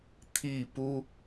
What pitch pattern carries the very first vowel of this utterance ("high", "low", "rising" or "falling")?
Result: falling